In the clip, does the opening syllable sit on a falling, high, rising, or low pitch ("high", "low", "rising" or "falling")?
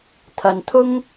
low